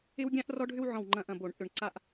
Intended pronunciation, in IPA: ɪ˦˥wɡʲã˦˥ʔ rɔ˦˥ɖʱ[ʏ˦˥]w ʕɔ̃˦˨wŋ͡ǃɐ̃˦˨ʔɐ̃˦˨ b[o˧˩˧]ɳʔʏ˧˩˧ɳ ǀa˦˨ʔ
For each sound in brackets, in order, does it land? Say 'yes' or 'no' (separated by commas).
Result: yes, yes